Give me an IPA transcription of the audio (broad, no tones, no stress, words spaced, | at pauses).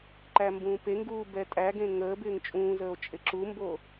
ǃæmbũːpeŋɡuː bɛtʼæɡẽ ŋəː bɪːŋt͡ʃʼũːzəːo̯ t͡ʃʼɪǁumbo